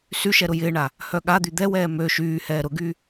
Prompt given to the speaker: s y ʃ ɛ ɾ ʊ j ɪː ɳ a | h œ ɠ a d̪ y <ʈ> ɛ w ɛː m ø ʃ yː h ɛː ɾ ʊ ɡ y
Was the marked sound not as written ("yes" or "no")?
yes